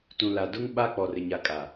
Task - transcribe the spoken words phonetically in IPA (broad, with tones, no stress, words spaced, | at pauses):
tũ˨la˨dʊ˦ŋ ɓa˦ k͡pɔ˨rɪ˨ɲa˨kʼa˨